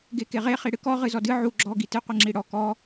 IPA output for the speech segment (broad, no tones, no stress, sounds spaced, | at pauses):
ɡ e k e ʁ e χ i ɽ ɨ k ɔ ʁ ɨ z ɔ d ɨ ʕ u ɡ͡ǁ ɔ ɡ i t ɨ qʷ ɨ ŋ͡ǁ i ɽ ɔ k ɔ